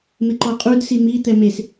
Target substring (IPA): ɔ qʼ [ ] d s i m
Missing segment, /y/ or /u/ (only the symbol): u